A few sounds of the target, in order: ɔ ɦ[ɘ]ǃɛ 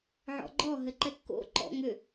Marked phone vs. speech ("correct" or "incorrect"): correct